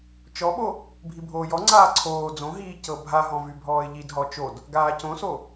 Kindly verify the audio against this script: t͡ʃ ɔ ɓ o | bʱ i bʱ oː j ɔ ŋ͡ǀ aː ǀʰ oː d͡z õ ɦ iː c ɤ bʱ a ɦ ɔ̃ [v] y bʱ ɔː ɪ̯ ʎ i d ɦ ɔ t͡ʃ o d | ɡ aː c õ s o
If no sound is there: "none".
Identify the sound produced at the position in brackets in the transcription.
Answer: v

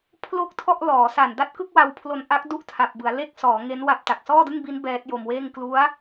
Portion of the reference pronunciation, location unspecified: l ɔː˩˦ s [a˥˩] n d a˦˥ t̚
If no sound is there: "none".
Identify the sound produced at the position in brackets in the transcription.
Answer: a˨˩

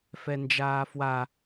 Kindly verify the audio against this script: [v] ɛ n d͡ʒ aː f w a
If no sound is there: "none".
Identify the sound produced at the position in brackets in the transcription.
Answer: f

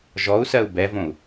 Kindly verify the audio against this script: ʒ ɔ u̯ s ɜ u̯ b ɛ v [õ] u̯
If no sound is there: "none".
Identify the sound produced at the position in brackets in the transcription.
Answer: õ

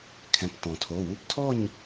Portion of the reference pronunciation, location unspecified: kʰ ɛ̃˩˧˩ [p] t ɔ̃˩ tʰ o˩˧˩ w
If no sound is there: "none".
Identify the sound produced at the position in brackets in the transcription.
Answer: p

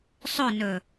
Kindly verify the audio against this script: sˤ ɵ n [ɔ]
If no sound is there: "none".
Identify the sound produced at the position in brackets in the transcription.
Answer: ɵ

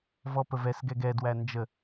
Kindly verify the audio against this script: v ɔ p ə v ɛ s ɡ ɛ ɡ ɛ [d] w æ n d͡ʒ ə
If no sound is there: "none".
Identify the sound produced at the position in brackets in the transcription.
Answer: d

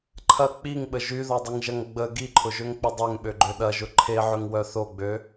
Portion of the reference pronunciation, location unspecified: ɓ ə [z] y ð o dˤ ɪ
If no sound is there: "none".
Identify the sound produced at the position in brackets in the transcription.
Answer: ʒ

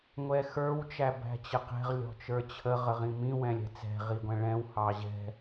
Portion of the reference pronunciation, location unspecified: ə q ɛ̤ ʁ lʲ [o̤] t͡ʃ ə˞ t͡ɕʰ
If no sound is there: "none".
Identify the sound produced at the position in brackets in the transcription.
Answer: ɔ̤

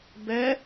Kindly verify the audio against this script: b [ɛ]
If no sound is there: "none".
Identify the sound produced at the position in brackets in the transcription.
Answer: ɛ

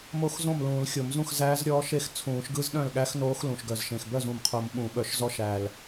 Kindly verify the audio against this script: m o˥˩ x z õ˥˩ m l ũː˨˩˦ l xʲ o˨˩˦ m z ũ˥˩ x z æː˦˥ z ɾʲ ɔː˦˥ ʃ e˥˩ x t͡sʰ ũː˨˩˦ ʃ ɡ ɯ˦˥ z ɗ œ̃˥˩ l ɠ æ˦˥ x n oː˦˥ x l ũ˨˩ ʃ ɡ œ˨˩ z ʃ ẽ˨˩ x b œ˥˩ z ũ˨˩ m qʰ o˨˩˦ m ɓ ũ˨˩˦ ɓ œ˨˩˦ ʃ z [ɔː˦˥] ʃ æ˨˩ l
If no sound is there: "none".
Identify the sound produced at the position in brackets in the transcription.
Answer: ɔ˦˥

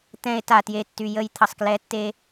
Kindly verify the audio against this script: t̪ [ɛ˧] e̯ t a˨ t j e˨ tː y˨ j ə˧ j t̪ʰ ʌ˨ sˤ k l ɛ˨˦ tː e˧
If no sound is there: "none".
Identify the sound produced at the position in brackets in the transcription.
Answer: ɛ̃˧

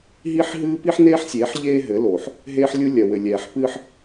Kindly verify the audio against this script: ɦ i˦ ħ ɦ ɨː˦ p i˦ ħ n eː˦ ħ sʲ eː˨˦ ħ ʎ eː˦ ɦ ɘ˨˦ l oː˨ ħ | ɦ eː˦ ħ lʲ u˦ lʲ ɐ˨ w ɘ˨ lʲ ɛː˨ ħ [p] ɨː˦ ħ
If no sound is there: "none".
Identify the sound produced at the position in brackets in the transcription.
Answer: p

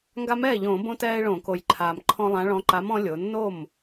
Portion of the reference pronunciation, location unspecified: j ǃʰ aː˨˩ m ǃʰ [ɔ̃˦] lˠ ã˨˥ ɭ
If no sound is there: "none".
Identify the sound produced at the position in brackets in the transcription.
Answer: ɔ̃˦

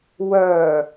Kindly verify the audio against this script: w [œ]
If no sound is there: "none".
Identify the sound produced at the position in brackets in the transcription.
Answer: œ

